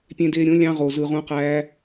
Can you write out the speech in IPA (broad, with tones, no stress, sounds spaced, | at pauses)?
pʲ ẽ˧ d eː˧ ɾʲ õ˨˦ lʲ ɑ̃˧ ʁ o˨ z ɯ˨ ʁ ũ˧ q æː˧